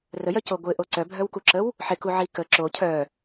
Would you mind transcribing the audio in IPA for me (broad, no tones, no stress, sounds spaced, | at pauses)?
r ə j œ c o ɡʷ ɪ ʔ o ǀ œ bʱ œ w k u ǁ ə w | ħ ɪ k u ʕ i k ə ǁ o cʰ œ